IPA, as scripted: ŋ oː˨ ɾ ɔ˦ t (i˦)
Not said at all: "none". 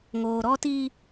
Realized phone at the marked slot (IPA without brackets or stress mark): iː˦